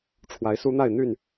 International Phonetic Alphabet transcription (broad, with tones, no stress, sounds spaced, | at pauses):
ʈ͡ʂʰ w a˨˦ ɪ̯ s u˦ n̪ a˥˨ ɪ̯ n̪ y˥˨ n